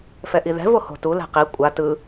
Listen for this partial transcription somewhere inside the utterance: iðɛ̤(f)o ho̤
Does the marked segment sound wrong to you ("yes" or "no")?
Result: yes